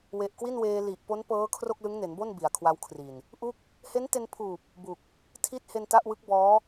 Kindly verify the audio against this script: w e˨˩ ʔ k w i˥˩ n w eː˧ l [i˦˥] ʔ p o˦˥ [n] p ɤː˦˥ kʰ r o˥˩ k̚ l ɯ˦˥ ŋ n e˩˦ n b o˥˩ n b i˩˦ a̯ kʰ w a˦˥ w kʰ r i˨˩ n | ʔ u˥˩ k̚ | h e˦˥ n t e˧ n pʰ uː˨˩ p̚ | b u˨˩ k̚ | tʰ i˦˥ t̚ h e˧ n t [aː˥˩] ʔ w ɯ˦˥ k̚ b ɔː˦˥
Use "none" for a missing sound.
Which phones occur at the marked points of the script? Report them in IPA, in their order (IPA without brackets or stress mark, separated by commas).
i˨˩, n, a˥˩